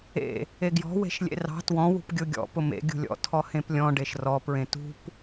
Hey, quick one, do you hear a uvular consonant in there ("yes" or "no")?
no